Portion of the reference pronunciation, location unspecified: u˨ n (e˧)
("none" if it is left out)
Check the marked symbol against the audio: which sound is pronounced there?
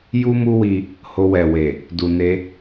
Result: e˧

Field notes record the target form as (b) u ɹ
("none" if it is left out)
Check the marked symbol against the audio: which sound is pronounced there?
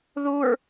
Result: ð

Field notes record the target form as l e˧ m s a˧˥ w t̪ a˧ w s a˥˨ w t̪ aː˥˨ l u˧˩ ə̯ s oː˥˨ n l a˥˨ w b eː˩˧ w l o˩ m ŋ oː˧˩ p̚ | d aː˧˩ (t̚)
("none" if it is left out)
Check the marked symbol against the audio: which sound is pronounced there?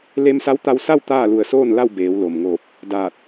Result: t̚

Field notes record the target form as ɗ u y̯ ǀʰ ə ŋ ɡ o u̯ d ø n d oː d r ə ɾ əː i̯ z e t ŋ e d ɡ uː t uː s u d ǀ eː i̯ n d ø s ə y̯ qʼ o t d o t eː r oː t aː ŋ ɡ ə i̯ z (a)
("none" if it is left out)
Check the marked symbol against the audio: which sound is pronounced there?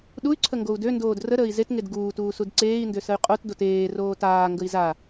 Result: a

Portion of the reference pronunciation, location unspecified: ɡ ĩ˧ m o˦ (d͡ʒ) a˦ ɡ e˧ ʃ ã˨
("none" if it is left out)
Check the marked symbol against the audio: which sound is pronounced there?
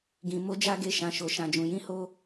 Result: d͡ʒ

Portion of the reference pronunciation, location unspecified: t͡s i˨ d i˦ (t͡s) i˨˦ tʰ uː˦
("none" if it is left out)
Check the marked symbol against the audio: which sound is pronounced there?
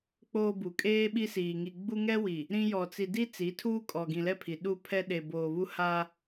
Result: t͡s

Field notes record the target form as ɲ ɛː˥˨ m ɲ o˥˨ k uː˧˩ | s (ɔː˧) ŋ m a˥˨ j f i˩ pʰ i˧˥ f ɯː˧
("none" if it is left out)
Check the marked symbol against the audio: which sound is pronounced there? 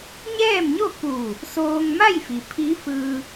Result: oː˧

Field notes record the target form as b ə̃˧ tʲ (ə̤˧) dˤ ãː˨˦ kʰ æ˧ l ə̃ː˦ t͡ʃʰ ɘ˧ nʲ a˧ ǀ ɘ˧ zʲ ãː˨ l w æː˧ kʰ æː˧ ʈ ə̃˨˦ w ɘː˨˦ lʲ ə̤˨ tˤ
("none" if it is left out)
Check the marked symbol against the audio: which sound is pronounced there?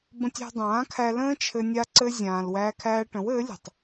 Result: æ̤˧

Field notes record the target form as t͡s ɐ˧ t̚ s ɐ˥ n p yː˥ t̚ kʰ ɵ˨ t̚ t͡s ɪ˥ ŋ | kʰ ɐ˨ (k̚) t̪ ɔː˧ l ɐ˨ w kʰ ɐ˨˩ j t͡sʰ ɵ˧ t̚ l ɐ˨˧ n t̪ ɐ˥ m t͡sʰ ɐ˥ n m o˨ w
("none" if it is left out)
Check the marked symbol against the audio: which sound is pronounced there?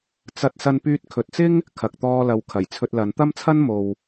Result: k̚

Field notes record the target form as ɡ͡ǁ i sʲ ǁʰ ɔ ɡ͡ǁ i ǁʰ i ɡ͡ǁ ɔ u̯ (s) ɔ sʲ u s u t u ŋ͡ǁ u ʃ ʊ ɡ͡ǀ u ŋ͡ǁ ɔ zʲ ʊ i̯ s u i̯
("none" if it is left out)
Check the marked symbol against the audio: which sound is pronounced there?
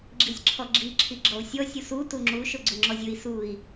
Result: sʲ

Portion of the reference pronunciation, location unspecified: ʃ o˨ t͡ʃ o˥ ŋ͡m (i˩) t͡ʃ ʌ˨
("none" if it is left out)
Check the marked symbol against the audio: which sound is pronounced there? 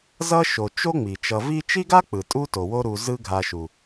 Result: i˩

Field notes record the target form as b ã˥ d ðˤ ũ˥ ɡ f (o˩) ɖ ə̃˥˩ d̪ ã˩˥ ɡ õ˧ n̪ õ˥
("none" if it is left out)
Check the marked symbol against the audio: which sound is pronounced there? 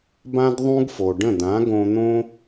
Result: o˩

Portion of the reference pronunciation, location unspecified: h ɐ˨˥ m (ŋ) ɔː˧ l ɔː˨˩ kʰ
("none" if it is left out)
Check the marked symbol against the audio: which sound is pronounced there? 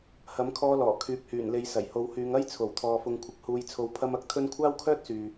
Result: kʰ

